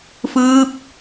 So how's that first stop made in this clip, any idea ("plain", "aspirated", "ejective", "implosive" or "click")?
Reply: plain